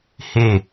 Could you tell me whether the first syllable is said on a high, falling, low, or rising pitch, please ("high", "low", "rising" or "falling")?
falling